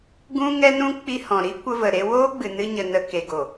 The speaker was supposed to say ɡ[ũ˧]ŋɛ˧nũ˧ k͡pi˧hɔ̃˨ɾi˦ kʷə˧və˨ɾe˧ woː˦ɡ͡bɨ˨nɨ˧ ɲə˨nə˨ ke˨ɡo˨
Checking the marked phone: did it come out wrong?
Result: no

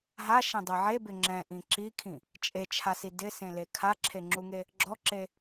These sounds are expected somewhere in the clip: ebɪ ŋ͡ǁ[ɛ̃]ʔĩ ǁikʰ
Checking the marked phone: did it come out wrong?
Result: no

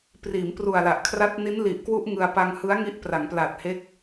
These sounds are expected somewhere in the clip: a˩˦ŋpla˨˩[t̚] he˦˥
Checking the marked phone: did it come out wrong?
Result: no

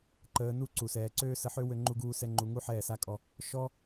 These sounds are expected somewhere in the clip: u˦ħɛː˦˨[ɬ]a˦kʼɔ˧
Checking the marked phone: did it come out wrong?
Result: yes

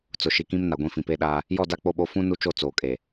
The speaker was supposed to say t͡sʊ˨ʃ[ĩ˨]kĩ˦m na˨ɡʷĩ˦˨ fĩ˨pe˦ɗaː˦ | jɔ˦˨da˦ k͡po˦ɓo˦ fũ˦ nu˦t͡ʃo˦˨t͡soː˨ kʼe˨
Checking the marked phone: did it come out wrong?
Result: yes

